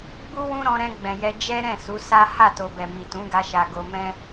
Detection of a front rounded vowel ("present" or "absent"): absent